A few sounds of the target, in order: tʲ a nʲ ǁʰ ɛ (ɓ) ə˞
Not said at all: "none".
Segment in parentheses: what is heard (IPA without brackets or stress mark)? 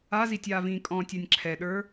ɗ